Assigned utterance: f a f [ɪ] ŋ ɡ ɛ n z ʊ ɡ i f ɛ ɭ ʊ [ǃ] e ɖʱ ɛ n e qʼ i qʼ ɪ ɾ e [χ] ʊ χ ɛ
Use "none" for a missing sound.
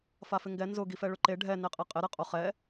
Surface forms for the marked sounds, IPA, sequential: ɪ, ǃ, qʼ

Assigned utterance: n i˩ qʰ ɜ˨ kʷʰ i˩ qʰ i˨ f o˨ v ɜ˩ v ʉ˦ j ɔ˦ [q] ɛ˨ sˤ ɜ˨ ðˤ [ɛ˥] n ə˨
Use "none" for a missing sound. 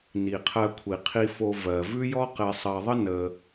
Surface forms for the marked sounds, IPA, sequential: q, ə˥

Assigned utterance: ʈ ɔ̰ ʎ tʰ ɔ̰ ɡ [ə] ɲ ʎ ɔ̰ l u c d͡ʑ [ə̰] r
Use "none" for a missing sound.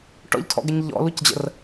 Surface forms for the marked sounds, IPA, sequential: ə, ə̰

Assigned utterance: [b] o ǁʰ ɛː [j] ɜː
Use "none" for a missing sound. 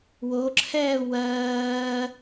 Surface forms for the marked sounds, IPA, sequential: w, w

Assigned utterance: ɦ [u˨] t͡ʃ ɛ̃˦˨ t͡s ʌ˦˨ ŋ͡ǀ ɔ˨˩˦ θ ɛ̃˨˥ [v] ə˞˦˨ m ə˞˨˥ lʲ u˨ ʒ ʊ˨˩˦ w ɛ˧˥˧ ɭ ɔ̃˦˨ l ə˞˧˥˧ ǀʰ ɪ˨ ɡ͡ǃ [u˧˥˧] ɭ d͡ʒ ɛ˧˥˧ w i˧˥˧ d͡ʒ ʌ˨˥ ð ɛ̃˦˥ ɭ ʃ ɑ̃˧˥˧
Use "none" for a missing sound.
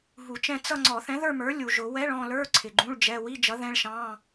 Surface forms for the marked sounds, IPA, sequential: u˨˩˦, ð, ũ˧˥˧

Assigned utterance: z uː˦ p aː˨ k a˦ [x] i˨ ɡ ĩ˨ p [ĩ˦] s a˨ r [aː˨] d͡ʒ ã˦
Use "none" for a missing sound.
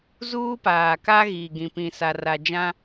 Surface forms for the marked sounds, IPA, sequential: ɣ, ĩ˨, a˨

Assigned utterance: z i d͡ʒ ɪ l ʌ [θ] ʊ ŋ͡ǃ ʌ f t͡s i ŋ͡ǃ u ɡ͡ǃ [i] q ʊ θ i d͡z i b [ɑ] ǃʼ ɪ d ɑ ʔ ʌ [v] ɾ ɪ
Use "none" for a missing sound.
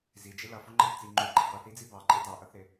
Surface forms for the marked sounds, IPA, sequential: f, ɪ, ɑ, θ

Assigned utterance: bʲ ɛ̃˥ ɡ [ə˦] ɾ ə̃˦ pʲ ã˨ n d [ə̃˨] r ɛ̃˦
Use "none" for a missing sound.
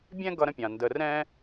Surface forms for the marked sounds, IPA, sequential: ʌ˦, ə˨

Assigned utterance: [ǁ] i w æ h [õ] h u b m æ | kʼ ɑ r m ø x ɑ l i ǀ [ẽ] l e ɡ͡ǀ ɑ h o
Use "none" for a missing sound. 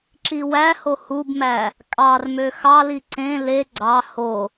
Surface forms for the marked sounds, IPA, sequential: ǁ, o, ẽ

